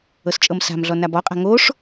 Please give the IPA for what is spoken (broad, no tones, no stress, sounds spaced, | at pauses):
ɤ s t͡ʃʼ ɤ m s a̤ m ɮ ɔ n a b ɔ qʼ a̤ ŋ o ʂ